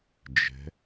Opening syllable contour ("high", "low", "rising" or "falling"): rising